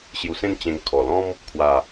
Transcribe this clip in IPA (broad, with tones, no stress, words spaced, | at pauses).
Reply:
ɕju˧sẽ˥˧n t͡ɕẽ˧ŋkʰɔ˨˩lɔ̃˦m | kʰwa˥˧